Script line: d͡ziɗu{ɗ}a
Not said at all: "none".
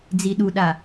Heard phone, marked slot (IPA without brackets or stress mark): ɗ